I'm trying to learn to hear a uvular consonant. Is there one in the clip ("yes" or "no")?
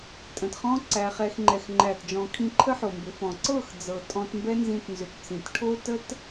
yes